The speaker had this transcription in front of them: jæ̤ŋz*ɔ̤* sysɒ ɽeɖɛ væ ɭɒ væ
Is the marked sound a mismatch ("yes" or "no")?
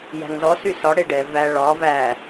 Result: yes